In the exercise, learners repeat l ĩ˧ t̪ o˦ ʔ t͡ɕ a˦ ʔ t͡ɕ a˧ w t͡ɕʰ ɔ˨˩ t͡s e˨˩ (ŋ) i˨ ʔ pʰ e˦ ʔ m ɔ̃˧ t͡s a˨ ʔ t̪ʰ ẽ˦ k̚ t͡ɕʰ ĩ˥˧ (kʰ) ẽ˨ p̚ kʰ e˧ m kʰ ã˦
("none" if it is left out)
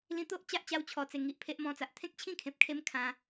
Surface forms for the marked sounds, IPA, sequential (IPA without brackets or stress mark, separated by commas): ŋ, kʰ